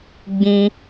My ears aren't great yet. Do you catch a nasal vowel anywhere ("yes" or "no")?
yes